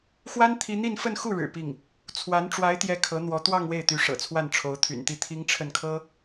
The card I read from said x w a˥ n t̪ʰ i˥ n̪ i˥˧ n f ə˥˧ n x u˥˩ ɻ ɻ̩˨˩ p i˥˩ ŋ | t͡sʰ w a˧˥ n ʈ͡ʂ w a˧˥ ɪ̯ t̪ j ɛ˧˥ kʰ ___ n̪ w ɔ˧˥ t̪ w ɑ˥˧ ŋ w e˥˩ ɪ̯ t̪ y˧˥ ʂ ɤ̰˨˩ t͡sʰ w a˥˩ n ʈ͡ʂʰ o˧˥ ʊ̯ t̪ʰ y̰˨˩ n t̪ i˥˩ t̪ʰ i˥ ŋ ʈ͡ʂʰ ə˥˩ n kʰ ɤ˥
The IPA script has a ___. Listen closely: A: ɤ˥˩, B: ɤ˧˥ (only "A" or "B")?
B